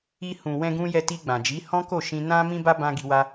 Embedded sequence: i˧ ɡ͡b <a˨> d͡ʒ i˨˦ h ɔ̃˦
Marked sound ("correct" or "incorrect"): incorrect